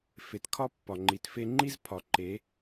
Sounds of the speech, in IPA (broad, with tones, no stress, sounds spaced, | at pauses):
f e˨ t kʰ ɒ˦ pː ɒ˨ ŋ͡ǃ i˨ t f e˧ ŋ͡ǃ i˦ z pʰ ɒ˨ ǃ e˨˦